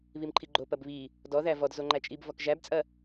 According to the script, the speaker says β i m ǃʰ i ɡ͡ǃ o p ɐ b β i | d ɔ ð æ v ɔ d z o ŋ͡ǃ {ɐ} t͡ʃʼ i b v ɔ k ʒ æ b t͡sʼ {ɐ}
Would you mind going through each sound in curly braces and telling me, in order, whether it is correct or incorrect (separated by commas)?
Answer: incorrect, correct